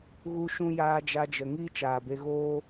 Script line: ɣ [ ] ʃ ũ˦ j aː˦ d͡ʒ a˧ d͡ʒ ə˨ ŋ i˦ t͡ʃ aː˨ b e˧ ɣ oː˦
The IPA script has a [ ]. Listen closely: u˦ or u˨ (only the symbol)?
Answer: u˦